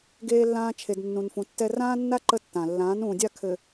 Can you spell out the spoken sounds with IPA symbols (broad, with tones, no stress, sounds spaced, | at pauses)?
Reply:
ɡ eː˨ lː ãː˨ t͡ʃʰ e˨ d nː ũ˨ n f ũ˨˦ tː ɛ˦ r ãː˦ nː a˦ ǃ ə˦ tː ã˨ lː ãː˨˦ n ũː˨ dʲ a˦˨ kʰ ɘ˨